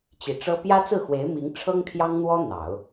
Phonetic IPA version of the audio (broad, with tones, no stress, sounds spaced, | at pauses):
t͡ɕ i˨˩ ʈ͡ʂ ɤ˥ p j ä˥ t͡s ɹ̩˥˩ x w e˧˥ ɪ̯ m i˧˥ ŋ ʈ͡ʂʰ ɤ˥ ŋ t̪ʰ j ɑ˥ ŋ n̪ w ɔ˥ n̪ ɑ˨˩˦ ʊ̯